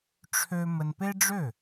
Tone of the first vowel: high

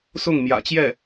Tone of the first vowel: falling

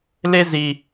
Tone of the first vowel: high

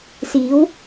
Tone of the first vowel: rising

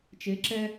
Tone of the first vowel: rising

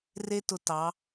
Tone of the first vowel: high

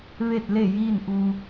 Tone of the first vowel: falling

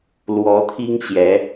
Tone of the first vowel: rising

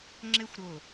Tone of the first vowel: high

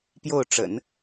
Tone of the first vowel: falling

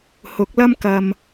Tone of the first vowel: rising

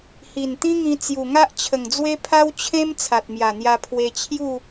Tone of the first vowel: low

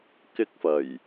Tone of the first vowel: high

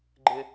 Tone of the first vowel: low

